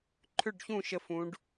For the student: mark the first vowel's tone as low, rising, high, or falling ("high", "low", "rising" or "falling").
falling